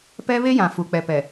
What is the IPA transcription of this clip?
p ɛ˦ β e˦ j ã˨ f u˨ k͡p ɛ˨ p ɛ˨

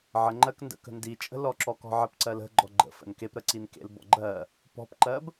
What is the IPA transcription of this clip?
ʕ ə ŋ͡ǃ ɜ k n d ə̰ k ə̤ n d i t͡ʃʼ ə̤ l ɔ ǁ ɔ k ɔ̤ ʕ ə p ǀ ɜ l ə̤ ɡ͡ǃ ɔ ɡ͡ǃ ə̰ f ə̰ n k e p ɾ ə ǀ i n k ḛ l b ɔ̰ ɡ͡ǃ ɜ | p ɔ̤ p ǃ ɜ b

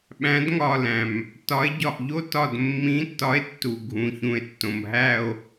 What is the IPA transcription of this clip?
ɓ æ̃˨˥ d ŋ ɒ˧˩ l æ̃˩ m | t ɒ˨˥ e̯ ɟ ɒ˧˩ ʔ ʎ o˦˥ t ɒ˧˩ d mː ĩ˨˥ tː ɒ˨˥ e̯ tː u˩ ɡʱ ũ˩˧ ç ũ˩ e̯ tː õ˩ m ɦ æ˧˩ o̯

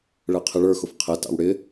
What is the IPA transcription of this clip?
ɭ ɛ qʰ ɪ ɭ ə˞ x ʊ f qʰ ɛ t ɑ̰ w ɽ ɪ

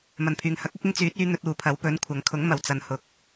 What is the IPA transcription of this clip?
m ɐ˨˩ n pʰ yː˨˩ ŋ h ɐ˨˥ k̚ ʊ˨˥ k̚ ɪ˥ ŋ t͡s yː˨˥ t̚ yː˧ n̪ ɵ˧ t̚ uː˨ pʰ ɐ˨˥ w p ɵ˨˥ n kʷʰ ɐ˨˥ ŋ kʰ ʊ˨˥ ŋ m ɐ˨˩ w t͡s ɐ˨ n h ʊ˨˥ k̚

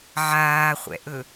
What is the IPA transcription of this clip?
ʕ aː χʷ ɛ̰ ʔ ɵ

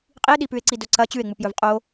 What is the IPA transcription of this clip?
qʼ i e̯ ɗ i p ʉ e̯ ǀ i d ɵ ǀ ɐ t͡ɕ ʉ e̯ ŋ͡m u p j ɵ v qʼ o

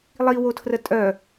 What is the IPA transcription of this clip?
lˠ i w o tʰ r ə tʼ œ

